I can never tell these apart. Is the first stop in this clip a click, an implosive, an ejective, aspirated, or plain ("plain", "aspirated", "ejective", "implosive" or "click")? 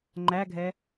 click